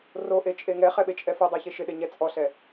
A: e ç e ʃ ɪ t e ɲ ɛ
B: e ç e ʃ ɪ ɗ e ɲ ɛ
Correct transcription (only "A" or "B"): B